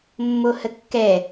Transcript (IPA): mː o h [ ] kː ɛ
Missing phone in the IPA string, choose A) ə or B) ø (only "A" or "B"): A